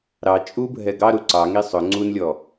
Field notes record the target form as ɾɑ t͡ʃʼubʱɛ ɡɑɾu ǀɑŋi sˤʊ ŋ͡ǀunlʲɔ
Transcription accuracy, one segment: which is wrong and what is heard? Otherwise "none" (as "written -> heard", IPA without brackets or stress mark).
none